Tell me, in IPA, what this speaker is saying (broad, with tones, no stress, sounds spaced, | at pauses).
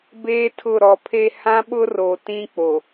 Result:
b eː˦ tʰ ʊ˦˨ ɾ ɔ˨ pʰ e˦ h ã˦ ɓ ʊ˦ r o˨ t ĩ˦ k͡p o˨